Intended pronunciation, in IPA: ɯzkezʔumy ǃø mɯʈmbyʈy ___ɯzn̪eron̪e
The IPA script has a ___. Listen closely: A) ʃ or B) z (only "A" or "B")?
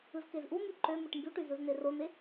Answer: B